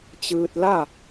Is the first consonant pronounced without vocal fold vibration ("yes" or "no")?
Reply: yes